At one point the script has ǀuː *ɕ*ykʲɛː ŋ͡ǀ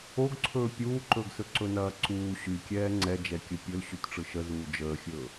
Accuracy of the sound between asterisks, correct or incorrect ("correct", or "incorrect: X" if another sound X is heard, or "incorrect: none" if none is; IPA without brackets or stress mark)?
correct